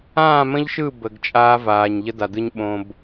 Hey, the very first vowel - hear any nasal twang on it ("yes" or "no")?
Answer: yes